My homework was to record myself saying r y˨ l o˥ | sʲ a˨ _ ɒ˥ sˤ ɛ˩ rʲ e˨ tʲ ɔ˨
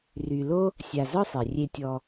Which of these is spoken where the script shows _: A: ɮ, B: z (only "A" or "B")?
B